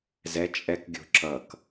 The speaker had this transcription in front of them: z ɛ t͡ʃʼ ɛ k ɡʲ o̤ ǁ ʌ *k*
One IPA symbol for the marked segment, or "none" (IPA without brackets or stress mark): k